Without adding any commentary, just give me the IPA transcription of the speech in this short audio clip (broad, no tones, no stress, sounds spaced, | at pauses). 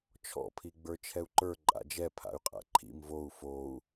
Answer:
t͡ʃʰ ɔ̰ pʰ i ɡ͡b ə˞ t͡ʃʰ ɛ u̯ ǃ ə˞ ǃʼ a̰ d͡ʒ ɛ pʰ a̰ y̯ qʼ a̰ ǃʰ ḭ m v o u̯ f o u̯